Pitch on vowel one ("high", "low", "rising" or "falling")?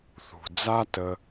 low